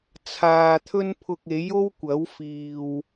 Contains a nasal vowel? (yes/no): no